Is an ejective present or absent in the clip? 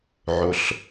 absent